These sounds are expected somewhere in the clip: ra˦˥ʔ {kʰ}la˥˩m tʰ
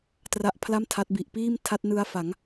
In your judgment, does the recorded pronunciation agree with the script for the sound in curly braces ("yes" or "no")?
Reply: no